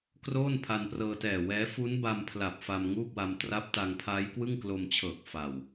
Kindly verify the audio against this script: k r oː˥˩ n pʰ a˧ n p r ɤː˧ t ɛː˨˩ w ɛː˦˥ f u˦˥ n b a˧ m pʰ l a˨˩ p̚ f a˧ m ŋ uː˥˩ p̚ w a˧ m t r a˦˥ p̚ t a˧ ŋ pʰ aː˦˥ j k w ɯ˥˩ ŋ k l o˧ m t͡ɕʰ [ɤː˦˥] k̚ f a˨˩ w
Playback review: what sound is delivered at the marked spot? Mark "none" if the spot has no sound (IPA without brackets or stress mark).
ɤː˨˩